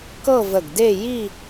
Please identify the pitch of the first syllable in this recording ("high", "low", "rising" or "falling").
falling